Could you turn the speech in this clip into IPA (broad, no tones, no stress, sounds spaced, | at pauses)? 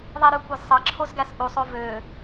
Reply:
ðˤ i ɾ ø kʷ æ z sˤ ɑ ǁʰ o z ɡ æ s ʔ u sˤ o v ø